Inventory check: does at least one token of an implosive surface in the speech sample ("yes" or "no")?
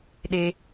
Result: yes